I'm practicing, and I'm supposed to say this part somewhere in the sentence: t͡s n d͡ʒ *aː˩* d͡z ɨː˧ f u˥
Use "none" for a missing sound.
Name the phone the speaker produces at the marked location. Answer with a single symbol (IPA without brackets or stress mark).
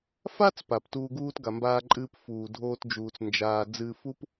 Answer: aː˧